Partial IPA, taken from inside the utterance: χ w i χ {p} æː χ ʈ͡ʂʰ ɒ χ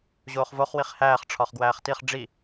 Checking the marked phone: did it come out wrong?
yes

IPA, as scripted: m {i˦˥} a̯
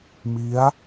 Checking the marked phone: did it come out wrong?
no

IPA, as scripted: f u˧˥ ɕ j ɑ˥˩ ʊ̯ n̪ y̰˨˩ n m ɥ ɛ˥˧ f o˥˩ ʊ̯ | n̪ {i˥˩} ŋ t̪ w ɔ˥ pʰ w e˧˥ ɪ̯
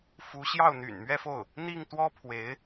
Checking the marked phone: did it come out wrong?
no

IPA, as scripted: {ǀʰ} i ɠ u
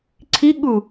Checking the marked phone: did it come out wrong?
no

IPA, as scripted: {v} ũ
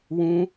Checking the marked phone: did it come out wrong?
yes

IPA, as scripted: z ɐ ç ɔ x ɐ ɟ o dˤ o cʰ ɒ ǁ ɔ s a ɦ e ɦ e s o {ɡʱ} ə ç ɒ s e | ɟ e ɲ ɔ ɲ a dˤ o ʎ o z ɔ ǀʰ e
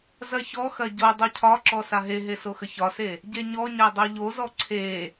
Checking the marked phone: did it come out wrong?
yes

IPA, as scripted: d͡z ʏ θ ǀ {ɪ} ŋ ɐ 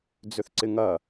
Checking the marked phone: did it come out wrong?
no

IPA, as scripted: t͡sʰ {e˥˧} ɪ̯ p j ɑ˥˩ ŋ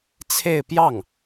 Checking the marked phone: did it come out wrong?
no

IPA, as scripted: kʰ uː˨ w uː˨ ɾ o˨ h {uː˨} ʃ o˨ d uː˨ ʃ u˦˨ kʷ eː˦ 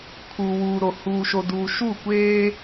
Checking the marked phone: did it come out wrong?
no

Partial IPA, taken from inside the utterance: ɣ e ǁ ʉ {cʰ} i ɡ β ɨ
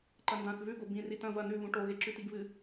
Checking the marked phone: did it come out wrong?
yes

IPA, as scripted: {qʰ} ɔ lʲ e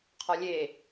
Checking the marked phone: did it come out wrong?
no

